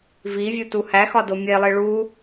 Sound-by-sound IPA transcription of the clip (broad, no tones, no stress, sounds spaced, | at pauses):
v i vʲ u t u h æ x ɒ d o mʲ e lˠ i ɭ u